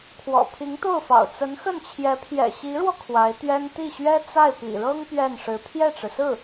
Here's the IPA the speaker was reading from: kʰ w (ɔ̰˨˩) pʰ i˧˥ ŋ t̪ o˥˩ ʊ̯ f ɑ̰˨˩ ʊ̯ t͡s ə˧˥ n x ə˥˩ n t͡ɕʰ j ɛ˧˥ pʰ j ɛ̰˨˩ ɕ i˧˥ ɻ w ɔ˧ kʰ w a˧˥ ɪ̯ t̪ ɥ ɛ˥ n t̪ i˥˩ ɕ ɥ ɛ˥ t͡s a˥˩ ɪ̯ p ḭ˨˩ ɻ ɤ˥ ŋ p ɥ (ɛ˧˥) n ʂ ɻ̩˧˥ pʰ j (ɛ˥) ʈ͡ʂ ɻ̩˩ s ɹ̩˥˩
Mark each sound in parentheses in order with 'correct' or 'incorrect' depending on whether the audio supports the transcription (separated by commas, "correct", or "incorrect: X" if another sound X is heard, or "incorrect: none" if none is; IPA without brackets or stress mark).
correct, incorrect: ɛ˥˩, incorrect: ɛ˥˩